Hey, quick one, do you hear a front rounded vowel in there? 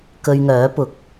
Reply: yes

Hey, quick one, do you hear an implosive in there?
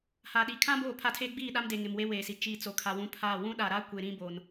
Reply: yes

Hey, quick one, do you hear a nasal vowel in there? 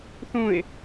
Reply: yes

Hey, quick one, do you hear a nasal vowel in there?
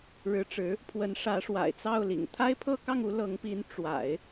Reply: no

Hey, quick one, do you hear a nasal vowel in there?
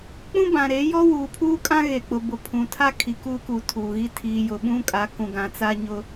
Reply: yes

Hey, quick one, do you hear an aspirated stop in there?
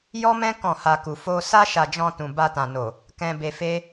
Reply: no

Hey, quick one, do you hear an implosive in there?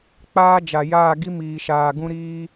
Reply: no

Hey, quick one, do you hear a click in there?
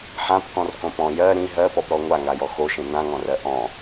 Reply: no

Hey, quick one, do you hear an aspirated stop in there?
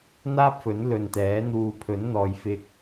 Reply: yes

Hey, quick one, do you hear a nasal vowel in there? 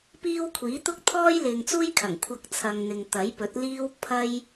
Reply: no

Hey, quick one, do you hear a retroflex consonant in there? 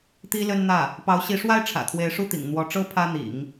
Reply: yes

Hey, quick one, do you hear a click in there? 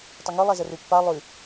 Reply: no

